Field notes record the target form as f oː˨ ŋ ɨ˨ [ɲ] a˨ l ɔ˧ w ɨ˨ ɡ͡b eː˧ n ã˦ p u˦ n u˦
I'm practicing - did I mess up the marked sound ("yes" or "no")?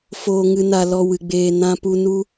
yes